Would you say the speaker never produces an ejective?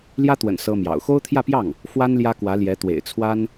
yes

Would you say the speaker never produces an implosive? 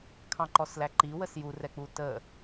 yes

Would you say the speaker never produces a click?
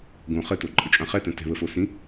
no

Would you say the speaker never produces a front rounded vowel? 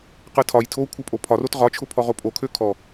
no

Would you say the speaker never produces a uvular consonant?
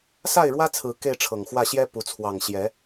yes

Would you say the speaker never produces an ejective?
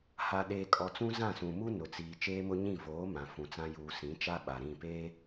no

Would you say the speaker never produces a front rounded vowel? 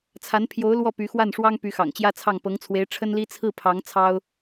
no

